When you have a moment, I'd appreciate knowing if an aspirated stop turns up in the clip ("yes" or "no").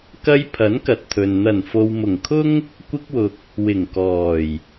yes